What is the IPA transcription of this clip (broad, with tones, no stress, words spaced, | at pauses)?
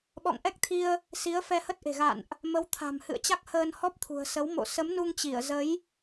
ɓɔ̰˧˨ŋʔɛ˦˥k̚t̪ʰi˧ə̯ | si˨˦ə̯fɛ˧hə˦˥t̚ʔe̤˨˩ ɣa̰˧˨nʔ | mə˨˦wt̪ʰa̤˨˩mhɨ̰˧˨ə̯t͡ɕa˦˥k̚ həː˧nhɔ˦˥p̚t̪ʰṳ˨˩ə̯sə˨˦w mo̰˧˨sə˨˦mnu˧ŋt͡ɕi˧˩ə̯ zə˨˦j